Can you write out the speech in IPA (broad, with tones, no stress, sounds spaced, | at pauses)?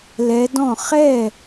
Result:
l ɛ˨˦ d ɔ̃˥˩ χ ɛ˥˩